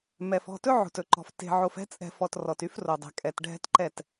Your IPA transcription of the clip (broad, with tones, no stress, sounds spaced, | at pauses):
m ɛ˨ f ɔ̤˦˨ t ɵ˦ ʕ o̤˨ t ɵ˨ ǃ ɔ̤˨ f t e̤˨ ʕ o˨ f ɛ̤˦ t͡sʼ ɛ̤˨ f ɔ˨ t r ɔ˨ t y˦ f r o˨ dˤ ɛ̤˨ kʼ ɛ˨ t ɖʱ ɛ̤˦ t ǃ ɛ˦˨ t